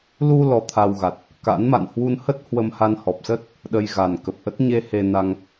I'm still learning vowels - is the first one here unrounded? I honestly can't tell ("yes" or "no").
no